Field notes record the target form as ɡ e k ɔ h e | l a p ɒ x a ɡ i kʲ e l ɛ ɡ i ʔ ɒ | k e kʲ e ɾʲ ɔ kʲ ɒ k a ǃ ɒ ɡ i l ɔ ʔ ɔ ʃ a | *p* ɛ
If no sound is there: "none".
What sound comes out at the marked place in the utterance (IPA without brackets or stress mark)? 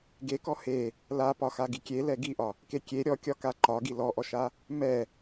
m